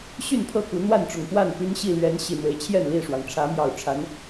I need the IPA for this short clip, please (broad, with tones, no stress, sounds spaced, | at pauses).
ɕ y˥˨ n pʰ ɤ˥˨ k u˨˦ n̪ w a˥˨ n ʈ͡ʂ ʊ˨˩ ŋ x w a˥˨ n p y˦ n ɕ i˥˨ l ɥ ɛ˨˦ n ɕ i˨˩ n̪ w e˨˦ ɪ̯ t͡ɕʰ j ɛ˥˨ n l i˥˨ ʂ w ɑ˩ ŋ ʈ͡ʂʰ ä˨˦ m j ɑ˨˩ ʊ̯ ʈ͡ʂʰ a˨˦ n